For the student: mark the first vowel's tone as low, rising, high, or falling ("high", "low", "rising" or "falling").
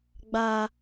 high